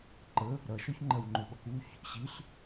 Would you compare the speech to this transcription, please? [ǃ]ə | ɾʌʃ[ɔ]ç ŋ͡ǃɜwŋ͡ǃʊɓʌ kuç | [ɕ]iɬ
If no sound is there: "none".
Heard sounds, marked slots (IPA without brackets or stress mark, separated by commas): ǃ, ɔ, ɕ